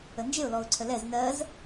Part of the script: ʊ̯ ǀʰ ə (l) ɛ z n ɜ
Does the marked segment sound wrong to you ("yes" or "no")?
no